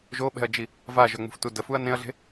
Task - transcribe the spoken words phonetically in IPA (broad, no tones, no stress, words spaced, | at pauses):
ʒoɓɛ̤ɐ̯d͡ʒi | vaʒœŋ͡mṳftu dəfuɐ̯ nẽɐ̯ɮe̤